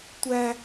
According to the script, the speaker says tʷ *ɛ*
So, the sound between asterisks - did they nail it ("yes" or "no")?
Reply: no